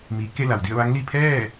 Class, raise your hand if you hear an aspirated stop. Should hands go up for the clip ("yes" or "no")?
yes